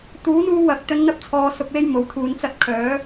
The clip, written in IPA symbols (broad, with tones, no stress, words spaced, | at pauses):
t̪uː˨˥n̪uː˧ wɐ˨k̚ t̪ɵ˧nn̪ɐ˥p̚t͡sʰɔː˨˧ sʊ˧k̚we˥jmo˨˥wt̪ʰuː˨˧n t͡sɐ˧t̚kʰœː˨˥